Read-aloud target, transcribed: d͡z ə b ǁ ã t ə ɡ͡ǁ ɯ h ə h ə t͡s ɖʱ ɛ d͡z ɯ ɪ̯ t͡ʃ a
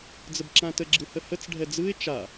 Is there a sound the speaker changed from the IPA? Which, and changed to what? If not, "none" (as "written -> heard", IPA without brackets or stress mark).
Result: none